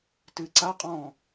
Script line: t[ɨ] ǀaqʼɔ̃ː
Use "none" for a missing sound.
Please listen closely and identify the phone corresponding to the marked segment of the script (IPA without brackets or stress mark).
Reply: ɨ